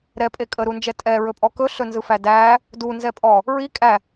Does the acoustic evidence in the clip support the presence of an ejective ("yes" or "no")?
yes